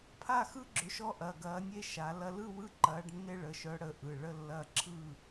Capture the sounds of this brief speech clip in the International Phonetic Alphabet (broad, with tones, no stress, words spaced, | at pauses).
pʰa˥˨xɯ˦ɡ͡ǁʏ˨˦ʃɔ˦ ʔɐ˩˧˩ɡɐː˨˦nʲe˦ ʃa˨˦lɐ˦ lɯ˥˨wɯ˦ǃɐː˨˦ɖnːe˦ ɭə˩˧˩ʃœ˨˦ɽə˩˧˩ ʔɯ˩˧˩ɭə˥˨lːɐː˦ǁʰɯ˥˨